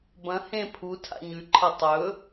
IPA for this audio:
b ɐ̃ h ẽ pʰ u tʰ a̰ ɲ ʉ ǃʰ ɐ tˤ ɵ

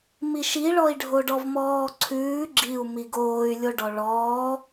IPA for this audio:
m i ʃ i ɭ ɔ i̯ ɖʱ o ɖ ɔ v m ɔː ǀʰ ʉː ɡ͡ǁ i u̯ m i ɡ oː y̯ lʲ o ɖ ɔ ɭ ɔː

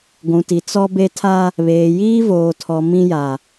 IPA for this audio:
ɡʷ ũ˨ t i˨ t͡s ɔ˦ b e˦ tʰ a˦ | β eː˨ j iː˦ v oː˨ tʰ ɔ˨ m ĩ˦ j a˨

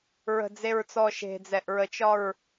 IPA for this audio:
ɹ ə̤ d͡z e ɹ t͡s ɔ ʃ e̤ d͡z ɛ ʔ ɹ ə t͡ʃ ɒ ɹ

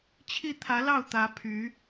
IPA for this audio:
t͡ɕʰ i˥˩ t̪ʰ ä˧˥ l ɑ˥˩ ʊ̯ t̪ ä˧˥ pʰ y˧˥

